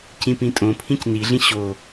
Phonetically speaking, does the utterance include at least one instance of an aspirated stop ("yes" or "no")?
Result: yes